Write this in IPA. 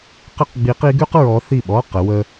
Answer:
q ə˥ q ɡ͡b i˧˥ q i˧˥ ɡ ʉ˥ q ɹ ɔ˧˥ θ i˥˨ ɓ ɔ˧˥˧ q ə˧˥ w ə˥

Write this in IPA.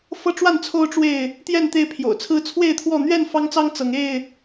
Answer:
f ɤ˦ ʈ͡ʂ w a˥˨ n t͡sʰ o˦ ʊ̯ ʈ͡ʂ w e˥˨ ɪ̯ | t̪ j ɛ˥˨ n t̪ e˥˨ ɪ̯ pʰ j o̰˨˩ ʊ̯ t͡sʰ ɹ̩˦ t͡sʰ w e˥˨ ɪ̯ t̪ʰ w ɔ˥˨ n̪ ɥ ɛ˥˨ n f ɑ˦ ŋ t͡s ɑ˦ ŋ t͡s ɤ˨˦ ŋ e˥˨ ɪ̯

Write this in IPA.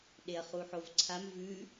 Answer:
ɗ e ɐ̯ χ u ħ o v ǀʰ a m v ʉ

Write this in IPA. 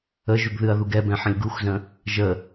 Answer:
ə ʒ ʉ ɡ ð ɨ ɐ̯ ð u ɡ ɛ b ɛ̃ ħ ə̃ lʲ ɡ u x z ə̃ | ʒ ə

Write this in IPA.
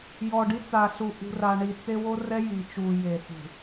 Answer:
j ɔ˨ ɖ i˦ t͡s a˨ ɬ u˨ ʔ ṳ˨ r a˨ ɳ i˨ t͡s e˦ w o˦ r ɛ˦ j i˨ t͡ʃ u˨ j e˨ s ṳ˨

